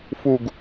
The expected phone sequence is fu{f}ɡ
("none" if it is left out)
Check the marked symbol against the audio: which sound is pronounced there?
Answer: none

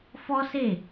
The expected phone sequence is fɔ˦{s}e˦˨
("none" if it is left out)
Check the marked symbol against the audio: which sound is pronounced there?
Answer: s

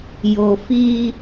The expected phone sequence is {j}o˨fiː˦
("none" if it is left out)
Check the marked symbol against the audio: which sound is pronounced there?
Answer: j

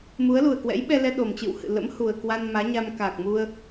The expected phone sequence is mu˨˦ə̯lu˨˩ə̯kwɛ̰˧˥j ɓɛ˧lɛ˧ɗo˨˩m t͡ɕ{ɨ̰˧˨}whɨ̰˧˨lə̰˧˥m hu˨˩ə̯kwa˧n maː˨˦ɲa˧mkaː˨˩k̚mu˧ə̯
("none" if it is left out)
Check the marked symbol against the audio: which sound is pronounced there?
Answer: ɨ̰˧˨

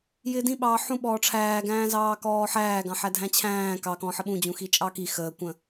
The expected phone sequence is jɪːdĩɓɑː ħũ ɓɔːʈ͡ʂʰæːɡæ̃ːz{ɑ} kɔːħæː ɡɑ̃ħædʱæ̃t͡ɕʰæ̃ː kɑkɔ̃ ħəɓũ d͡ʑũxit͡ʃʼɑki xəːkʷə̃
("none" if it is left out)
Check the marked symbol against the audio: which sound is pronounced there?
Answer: ɑː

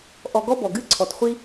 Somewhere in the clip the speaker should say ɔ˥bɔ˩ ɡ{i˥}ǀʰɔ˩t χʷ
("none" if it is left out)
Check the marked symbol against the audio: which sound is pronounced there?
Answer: ɨ˥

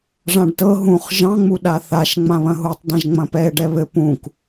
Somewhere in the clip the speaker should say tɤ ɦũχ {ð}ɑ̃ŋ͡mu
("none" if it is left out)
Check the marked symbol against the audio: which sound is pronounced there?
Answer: ʒ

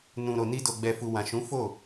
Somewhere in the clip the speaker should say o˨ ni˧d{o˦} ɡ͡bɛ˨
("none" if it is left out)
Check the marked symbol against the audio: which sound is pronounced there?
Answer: o˨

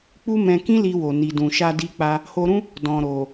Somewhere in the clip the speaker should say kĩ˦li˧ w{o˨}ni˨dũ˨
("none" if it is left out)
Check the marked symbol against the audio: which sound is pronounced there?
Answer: o˨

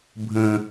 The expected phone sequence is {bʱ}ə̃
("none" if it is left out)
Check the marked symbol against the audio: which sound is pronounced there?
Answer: bʱ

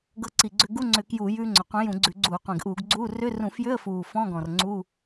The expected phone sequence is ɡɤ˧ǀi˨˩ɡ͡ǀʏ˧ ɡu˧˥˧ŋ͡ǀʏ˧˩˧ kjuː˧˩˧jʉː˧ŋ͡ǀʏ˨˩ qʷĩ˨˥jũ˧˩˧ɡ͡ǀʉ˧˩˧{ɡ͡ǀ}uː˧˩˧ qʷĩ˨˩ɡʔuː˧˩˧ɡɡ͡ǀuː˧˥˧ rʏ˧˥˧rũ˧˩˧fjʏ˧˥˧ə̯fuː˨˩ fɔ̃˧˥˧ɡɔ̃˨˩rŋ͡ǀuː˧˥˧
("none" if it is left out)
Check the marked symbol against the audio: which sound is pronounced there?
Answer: ɡ͡ǀ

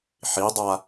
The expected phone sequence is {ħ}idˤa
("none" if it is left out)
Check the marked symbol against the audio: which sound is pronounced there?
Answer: ħ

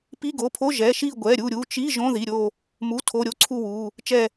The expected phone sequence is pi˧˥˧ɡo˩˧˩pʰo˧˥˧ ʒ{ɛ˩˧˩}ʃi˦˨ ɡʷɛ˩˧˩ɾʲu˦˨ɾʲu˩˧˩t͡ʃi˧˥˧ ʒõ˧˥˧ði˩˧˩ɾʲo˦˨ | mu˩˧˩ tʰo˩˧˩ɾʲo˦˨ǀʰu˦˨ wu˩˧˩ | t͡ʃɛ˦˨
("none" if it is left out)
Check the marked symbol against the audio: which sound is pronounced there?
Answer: ɛ˩˧˩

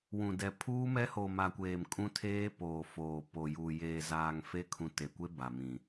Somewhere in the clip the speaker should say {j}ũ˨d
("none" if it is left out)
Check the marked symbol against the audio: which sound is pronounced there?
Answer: w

